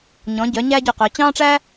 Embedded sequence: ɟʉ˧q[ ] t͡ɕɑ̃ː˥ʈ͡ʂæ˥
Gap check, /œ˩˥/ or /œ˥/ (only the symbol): œ˩˥